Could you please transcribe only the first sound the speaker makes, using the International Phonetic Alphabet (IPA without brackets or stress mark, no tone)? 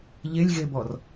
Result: ʎ